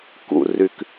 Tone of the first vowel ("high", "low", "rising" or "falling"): low